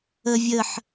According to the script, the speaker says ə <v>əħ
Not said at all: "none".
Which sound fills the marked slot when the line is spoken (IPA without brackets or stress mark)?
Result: vʲ